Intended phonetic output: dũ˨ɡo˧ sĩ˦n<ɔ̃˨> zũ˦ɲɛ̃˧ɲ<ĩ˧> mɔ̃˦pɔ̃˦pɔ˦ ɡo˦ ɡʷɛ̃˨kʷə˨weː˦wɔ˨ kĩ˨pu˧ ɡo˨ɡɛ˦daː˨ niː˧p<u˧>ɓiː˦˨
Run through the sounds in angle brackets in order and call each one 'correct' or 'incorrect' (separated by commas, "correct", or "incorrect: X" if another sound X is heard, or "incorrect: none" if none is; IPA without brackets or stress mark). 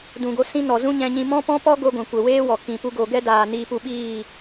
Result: incorrect: ɔ˨, correct, correct